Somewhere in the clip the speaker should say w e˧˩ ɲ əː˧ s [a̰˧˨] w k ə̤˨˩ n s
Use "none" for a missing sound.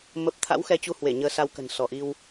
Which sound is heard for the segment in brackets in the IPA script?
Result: a˧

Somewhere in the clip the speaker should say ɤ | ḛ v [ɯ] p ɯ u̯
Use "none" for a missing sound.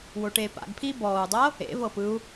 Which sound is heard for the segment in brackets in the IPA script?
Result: ɤ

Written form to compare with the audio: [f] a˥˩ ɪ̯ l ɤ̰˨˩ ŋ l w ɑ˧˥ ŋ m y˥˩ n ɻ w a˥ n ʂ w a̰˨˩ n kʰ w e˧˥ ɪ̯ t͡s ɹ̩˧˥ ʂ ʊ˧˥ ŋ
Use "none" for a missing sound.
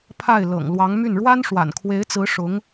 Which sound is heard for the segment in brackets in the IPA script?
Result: pʰ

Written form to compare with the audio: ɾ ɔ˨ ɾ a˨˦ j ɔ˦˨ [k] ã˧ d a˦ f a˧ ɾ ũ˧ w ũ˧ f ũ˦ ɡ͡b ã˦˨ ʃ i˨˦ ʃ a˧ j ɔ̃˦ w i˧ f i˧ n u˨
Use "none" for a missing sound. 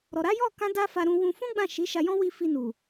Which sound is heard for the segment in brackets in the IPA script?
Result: k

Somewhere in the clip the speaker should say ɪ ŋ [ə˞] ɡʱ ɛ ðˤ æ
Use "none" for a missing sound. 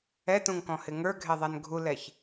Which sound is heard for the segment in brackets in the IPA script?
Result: ə˞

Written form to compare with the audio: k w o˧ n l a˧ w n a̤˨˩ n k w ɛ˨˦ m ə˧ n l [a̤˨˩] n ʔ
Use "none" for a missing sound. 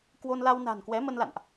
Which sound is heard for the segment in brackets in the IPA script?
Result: a̰˧˨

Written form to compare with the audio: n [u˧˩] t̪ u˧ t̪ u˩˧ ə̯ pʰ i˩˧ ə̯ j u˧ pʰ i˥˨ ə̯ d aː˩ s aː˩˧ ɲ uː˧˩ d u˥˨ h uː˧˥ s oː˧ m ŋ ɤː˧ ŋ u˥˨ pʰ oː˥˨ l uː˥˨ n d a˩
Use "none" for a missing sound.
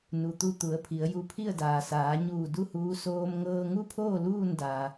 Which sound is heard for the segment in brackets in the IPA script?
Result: u˩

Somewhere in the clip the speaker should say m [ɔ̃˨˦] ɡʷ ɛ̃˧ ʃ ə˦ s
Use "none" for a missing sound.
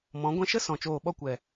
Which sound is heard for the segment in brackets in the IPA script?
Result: ɔ̃˨˦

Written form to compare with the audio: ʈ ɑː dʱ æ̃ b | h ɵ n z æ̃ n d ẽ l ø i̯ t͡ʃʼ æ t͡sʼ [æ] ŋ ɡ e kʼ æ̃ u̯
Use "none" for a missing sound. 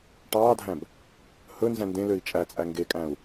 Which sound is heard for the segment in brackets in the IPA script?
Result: æ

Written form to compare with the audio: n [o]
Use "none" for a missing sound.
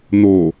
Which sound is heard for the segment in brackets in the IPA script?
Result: o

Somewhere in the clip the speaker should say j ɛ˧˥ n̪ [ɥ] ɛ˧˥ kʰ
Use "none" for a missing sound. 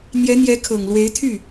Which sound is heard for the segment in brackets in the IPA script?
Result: j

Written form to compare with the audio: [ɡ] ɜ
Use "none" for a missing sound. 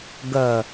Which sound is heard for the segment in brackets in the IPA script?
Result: ɡ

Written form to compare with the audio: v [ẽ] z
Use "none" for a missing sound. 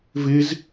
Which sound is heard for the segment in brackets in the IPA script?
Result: e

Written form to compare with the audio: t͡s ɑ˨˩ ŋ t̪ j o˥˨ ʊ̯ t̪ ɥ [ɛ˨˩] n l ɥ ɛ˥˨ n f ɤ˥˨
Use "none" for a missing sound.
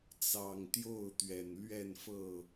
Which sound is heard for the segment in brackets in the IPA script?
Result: ɛ˨˩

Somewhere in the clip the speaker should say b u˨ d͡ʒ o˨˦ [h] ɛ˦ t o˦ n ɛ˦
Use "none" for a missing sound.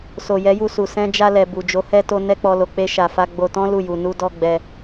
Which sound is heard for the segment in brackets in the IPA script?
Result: h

